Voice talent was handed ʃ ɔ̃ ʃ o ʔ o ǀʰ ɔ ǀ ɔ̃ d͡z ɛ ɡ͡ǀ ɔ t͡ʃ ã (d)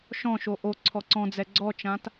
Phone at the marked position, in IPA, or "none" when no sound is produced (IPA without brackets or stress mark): t